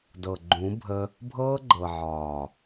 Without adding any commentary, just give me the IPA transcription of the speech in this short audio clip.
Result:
dɤ˨ɡ͡ǃũ˨˦bʱə˧ | bʱɤː˦ɡ͡ǃɤ˨ʕɒː˨

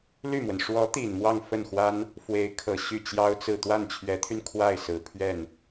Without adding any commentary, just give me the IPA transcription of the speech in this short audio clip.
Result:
ly˥˩mwə˩n ʂwɔ˧˥t̪i˨˩n mwɑ˥˧ŋfə˥˩nxwa˥n | fwe˧˥ɪ̯kʰɤ˨˩ ɕy˥˩t͡ɕjɑ˥ʊ̯t͡sɹ̩˥˧ t̪wa˥˩nt͡ɕʰɥɛ˧˥t̪ʰy˧n kʰwa˥˩ɪ̯sɹ̩˨˩ pʰɥɛ˥˩n

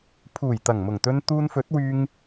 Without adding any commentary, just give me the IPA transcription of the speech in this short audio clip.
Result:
pʰuː˨˩jt̪ɐ˨˩ŋmʊ˨˩ŋt̪ɵ˧n t̪uː˧nfɵ˨˥t̚wyː˧ŋ

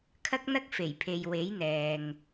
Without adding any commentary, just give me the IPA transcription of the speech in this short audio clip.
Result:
kʰɐ˥k̚n̪ɐ˥k̚ fe˨˩jpʰe˨j we˨˥jn̪ɛː˨ŋ

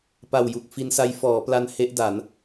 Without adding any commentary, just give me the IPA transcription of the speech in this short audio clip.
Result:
pa˨˩wju˨˩k̚ fi˧nsa˦˥j fɔː˩˦pla˧n he˦˥ʔ da˩˦n

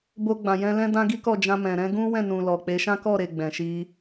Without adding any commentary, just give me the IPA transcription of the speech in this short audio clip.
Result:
bo˧ɡ͡bã˨jɛ̃˧ lɛ̃˦ dã˦ ɡi˦kɔ˦˨ d͡ʒã˧mɛ̃˨ ɾɛ̃˧ɡũ˦wɛ̃˦˨nũ˨ lɔ˨k͡pe˨˦ ʃã˦kɔ˦˨ɾe˨ ɡ͡bɛ̃˨ʃi˧

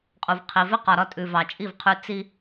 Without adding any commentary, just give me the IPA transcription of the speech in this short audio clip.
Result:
qʼu˨vqʰi˨vɪ˦ qɒ˨ɾɒ˧tʼʉ˨ vɑ˨t͡ʃʼi˦˨vqʰʉ˧ t͡si˦

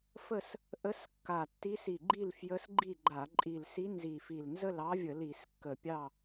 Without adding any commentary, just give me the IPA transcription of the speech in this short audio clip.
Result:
fə˥˨s | ʔə˧˥skːa˨˩ tːi˧˥si˨˩ɡ͡ǃi˥˨lfjə˧˥s ɡ͡ǃi˥˨ɡ͡ǃa˧˩˧ ǃʼi˨˩lsi˧˥ nzi˨˩fi˨˩l nzə˥˨lɑ˧˥vʲə˧˩˧ li˧˩˧skːə˨˩pʲɑ˥˨

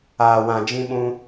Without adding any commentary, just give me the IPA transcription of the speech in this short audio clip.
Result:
aː˧wã˧ d͡ʒĩ˦ɓũ˦

